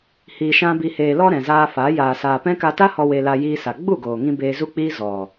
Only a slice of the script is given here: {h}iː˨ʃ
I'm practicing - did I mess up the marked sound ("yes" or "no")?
no